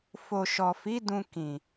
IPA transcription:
fo˨ʃɔ˨fi˨˦ dũ˧kĩ˨

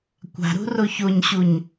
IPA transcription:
kʷa̤ɾṳro çoɲɕuɲ

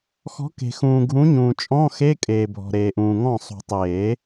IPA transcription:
xɔ̤˨˥ke̤˨xũː˨ ɡʱũ˨˥ɲũː˨ t͡ʃʼɔ̃˧˥˧xe˧˥˧ kʼeː˨bʱɔ̤˨ ɾeː˨ʔũː˨ŋɔ̃˥˩ sˤṳ˨˩˦tˤeː˨˩˦

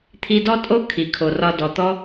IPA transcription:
t̪ʰi˧dɔ˦tʼo˦ kʰi˨kʰo˨rɒ˧ dɔ˨t̪ɔ˦

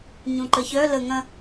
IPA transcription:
ɲũǃəçœ lə ŋɐ̃

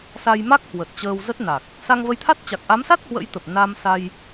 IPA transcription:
sa˧jma˦˥k̚hwə˨˩t̚ t͡ɕəː˧wzə˦˥t̚na˨˩k̚ | sa˧ŋvə˧jt̪ʰa˦˥t̚ t͡ɕa˨˩k̚ʔa˨˦msa˦˥t̚ hwə̰˧˥jt̪ə˨˩p̚ na˧msa˧j

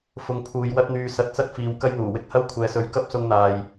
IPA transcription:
fʊ˧ŋ pʰuː˨˧jwɐ˥t̚n̪yː˧ sɐ˧t̚t͡sɐ˥t̚fiː˨˧w kɐ˥jn̪uː˨˩wɪ˥k̚ hɐ˥wkʷʰɛː˨˧sɵ˨˧ɥ kɐ˥p̚sʊ˧ŋn̪aː˨j

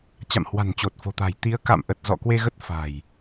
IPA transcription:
t͡ɕa̰˧˨mhwa̤˨˩nt͡ɕo˨˩t̚ fo̤˨˩t̪a̤˨˩j t̪i˨˦ə̯ka̰˧˨mʔə˨˩t̚ zɔ̰˧˨kwe˧ ɣə˦˥t̚ fa̤˨˩j

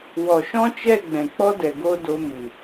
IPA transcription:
wɔ˨ʃɔ̃˦t͡ʃɛ˦˨ ɡ͡bɛ̃˨k͡pɔ˦dɛ˨ ɡo˦do˧mɨ˨

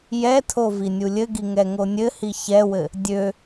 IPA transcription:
jɛtʰo vinʲulʲɘɡi ŋɛŋonʲɘhi çɛwɘ | dʲø

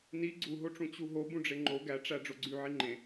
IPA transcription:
ni ɡ͡ǀuɦoʈ͡ʂũ t͡ɕuɦo bũɖ͡ʐeŋ͡ǃo ɡæʈ͡ʂæ ɖ͡ʐoɡ͡ǀy ʕiŋ͡ǃẽ

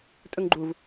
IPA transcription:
tʼɵŋɡ͡ǃuv

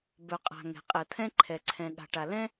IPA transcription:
bœ˩qʼa̤˩ ŋɛ̤˩qʼɛ˩t̪ʰɛ̃˥ ǃʰɛ˩ǀʰɛ̃˩ɠa̤˩ʈa˩ lɛ̃˥

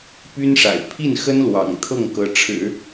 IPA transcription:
py˥nʂa̰˨˩ɪ̯ pʰi˥˩nxə˥nlwɑ̰˨˩ŋ t̪ʰɤ˥˩ŋkɤ˧˥ʈ͡ʂʰɻ̩˨˩˦

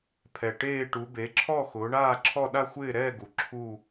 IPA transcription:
pʰɛ˨˩ ʈeː˥˧ʈu˨˦ be˨˦ǁʰɔ˥˧ xʊː˨˦ɳaː˥˧ǁʰɔ˥˧ ɗa˥˧xʷɪː˥˧ɾɛː˥˧ɡu˨˩ ǁʰu˥˧

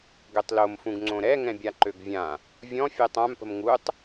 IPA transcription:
ɡøtˤlomfũɡŋ͡ǀõ ɾɛŋɛ̃ bʲaǃøɡvʲã | vʲɔ̃ fʲɛtˤãmpə̤m ŋutˤ

